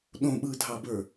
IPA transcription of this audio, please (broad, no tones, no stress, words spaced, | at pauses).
ɗõɓɯːdʱɑbə˞